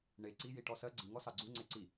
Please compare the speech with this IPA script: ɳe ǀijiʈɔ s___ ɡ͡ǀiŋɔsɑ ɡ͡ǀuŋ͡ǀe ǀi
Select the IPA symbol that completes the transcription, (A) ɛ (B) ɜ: B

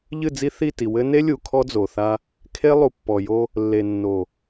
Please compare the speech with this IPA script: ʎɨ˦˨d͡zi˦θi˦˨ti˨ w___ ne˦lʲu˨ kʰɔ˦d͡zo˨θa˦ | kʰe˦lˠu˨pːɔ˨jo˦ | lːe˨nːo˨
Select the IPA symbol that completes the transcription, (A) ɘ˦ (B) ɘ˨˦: A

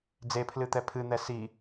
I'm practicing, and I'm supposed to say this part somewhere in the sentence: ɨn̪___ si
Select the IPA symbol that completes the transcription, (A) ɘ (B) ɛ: B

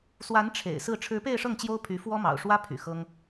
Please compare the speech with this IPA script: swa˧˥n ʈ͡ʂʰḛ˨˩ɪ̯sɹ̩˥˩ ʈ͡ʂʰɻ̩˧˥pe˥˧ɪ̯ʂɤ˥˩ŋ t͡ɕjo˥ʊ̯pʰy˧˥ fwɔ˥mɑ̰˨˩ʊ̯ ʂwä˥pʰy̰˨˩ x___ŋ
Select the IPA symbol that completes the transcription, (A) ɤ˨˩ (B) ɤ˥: B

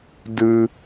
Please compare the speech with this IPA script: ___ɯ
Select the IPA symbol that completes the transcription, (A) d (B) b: A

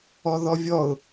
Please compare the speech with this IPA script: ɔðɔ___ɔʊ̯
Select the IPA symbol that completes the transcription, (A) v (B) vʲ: B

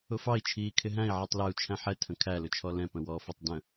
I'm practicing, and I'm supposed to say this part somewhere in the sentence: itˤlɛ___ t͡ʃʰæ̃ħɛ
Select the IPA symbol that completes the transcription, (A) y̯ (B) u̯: B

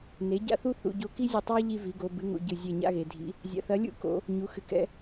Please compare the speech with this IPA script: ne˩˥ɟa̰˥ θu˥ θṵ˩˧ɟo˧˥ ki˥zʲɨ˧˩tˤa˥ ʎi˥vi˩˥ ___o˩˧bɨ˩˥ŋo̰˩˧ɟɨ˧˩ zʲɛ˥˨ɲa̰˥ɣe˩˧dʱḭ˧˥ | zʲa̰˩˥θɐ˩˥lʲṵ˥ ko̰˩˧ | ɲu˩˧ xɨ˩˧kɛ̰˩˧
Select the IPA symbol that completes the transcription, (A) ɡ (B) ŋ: A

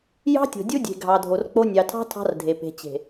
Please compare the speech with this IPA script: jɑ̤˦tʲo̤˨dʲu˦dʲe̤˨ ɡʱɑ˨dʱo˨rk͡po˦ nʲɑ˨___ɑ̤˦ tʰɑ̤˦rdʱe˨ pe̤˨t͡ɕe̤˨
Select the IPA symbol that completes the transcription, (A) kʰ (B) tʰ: B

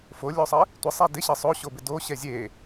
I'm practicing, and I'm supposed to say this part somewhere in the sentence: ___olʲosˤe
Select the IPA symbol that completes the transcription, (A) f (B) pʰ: A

